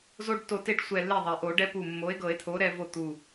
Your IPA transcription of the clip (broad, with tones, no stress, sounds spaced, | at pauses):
z o˦ ɖ tː o˧˩ t e˥˩ ɖ sʷ ɛ˧˩ lː e˥˩ ðˤ ɛ˩ ʔ o˨˩˦ ɖ ɛ˦ p u˧˩ mː o˩˥ e̯ ɡ ɤ˨˩˦ e̯ t̪ʰ o˩˥ ɾ ɛ˦ v o˥˩ t̪ u˧˩